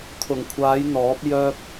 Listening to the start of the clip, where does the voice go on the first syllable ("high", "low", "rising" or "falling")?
low